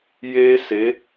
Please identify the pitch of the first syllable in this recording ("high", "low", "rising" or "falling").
high